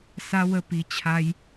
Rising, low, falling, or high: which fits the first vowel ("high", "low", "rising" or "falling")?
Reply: high